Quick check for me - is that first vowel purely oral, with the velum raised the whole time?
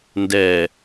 yes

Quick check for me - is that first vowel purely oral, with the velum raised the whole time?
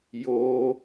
yes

